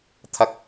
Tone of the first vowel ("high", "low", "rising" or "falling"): high